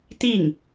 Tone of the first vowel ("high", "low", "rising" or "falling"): falling